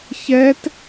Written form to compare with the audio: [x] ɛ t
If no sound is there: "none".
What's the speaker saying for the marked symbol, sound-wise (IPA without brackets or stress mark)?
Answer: ç